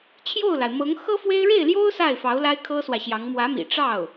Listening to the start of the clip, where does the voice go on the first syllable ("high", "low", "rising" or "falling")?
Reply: falling